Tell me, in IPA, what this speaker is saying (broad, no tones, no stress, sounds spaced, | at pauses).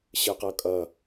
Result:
ɕ ɨ q ɤ kʼ ʌ